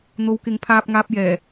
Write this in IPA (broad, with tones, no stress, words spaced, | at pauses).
n̪o˨˧wkɪ˨˥ŋpʰaː˧p̚ŋaː˧p̚ jɛː˨˩